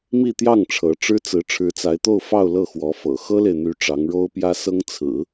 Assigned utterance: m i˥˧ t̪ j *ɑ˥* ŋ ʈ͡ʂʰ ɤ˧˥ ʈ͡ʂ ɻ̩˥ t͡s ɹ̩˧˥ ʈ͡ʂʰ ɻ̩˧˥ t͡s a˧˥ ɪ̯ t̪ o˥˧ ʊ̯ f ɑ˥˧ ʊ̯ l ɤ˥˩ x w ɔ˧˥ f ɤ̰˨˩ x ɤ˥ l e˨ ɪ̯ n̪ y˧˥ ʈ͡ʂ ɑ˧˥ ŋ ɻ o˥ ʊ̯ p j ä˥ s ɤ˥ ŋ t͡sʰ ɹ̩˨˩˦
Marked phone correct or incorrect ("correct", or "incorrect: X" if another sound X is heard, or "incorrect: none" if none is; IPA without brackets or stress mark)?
incorrect: ɑ˥˩